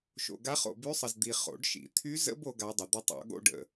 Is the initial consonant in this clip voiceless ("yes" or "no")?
yes